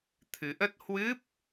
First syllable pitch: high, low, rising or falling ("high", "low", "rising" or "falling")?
rising